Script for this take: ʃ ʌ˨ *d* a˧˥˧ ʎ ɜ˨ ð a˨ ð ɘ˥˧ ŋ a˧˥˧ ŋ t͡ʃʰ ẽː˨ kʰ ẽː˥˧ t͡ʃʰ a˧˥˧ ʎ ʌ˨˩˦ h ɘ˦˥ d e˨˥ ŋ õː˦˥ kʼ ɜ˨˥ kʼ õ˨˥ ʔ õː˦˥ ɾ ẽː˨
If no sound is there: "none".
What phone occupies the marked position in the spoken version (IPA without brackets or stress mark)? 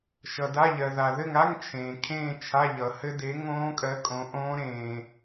d